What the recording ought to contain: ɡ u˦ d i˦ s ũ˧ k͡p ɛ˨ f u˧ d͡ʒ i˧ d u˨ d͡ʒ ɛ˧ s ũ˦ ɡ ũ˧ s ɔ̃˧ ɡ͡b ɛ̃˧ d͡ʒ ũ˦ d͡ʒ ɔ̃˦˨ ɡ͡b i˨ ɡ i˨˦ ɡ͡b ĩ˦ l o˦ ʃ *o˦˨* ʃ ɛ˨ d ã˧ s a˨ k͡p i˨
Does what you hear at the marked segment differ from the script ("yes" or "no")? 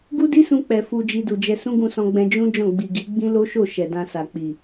no